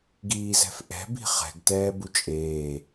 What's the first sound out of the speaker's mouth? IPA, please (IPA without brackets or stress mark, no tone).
ɡ